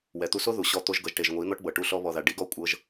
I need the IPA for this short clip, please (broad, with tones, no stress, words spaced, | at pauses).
wɛ˨t̪u˧so˦ ðu˨ ɕɔ˧ t̪o˧ʒɡɤ˨ʒʈe˨ʒ ŋʷi˨˦ n̪ɔ˦ʈbɤ˨ʈu˧ ɬɔ˧βɔ˨ða˨ ɖi˨˦ɡɔ˦ kʷʼɤ˧ʒ